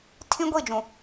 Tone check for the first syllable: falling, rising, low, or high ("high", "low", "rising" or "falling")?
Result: high